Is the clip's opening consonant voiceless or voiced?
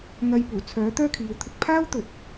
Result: voiced